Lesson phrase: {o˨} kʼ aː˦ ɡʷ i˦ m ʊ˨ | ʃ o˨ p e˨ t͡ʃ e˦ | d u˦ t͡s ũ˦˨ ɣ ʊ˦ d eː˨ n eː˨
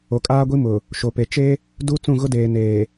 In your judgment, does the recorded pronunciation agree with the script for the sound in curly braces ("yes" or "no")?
yes